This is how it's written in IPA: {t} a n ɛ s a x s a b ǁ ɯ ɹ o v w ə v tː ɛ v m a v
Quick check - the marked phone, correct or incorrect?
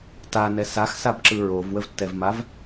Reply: correct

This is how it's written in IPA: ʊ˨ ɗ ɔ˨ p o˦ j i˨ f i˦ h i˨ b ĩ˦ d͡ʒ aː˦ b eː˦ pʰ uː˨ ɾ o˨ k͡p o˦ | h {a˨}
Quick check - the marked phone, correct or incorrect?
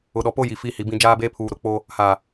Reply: incorrect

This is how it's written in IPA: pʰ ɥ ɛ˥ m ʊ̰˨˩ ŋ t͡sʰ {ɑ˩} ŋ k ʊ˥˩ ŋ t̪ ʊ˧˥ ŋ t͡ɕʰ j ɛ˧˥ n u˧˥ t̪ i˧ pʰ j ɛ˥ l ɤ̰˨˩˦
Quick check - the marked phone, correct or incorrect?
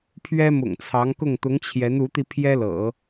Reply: incorrect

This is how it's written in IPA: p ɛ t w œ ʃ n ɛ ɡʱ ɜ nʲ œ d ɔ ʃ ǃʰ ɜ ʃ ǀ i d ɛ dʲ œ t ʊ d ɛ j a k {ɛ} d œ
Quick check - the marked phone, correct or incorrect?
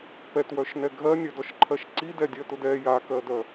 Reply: incorrect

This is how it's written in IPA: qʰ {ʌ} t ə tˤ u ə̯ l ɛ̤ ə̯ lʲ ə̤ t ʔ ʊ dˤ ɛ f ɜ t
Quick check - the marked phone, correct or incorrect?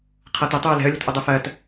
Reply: correct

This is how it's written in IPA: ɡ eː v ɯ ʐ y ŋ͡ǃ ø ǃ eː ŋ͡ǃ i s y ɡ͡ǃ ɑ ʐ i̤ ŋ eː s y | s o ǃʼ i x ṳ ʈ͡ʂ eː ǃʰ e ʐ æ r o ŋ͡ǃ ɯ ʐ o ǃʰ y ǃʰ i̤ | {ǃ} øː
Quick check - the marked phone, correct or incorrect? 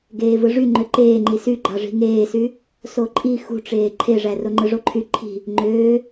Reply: incorrect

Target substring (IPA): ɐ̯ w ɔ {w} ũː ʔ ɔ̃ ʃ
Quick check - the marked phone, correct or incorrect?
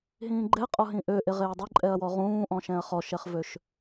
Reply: incorrect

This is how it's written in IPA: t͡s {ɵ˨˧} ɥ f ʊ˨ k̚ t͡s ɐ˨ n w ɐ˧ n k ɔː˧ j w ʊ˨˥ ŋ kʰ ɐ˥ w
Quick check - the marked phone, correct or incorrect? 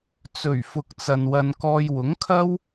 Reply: incorrect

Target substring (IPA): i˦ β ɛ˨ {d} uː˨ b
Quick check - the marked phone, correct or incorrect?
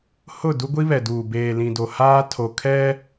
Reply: correct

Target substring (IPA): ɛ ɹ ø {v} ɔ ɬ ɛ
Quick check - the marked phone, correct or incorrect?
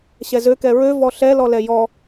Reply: correct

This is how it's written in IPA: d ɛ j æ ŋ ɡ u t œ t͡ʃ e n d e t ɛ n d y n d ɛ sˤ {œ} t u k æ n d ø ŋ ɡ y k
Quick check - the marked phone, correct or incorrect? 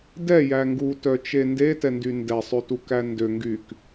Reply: incorrect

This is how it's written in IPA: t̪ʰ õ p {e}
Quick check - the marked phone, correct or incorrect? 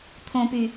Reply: incorrect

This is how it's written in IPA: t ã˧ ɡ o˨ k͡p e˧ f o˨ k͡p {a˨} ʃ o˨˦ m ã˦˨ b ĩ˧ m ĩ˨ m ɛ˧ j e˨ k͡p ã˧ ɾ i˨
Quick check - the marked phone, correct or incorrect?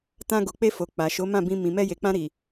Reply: correct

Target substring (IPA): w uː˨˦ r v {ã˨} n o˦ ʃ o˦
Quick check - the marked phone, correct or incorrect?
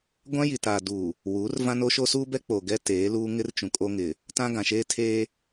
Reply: incorrect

